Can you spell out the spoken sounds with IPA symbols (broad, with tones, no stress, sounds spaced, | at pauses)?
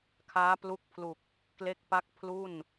kʰ aː˦˥ p l u˦˥ k̚ pʰ l u˨˩ k̚ | k l e˥˩ k̚ p a˥˩ k̚ pʰ l u˥˩ n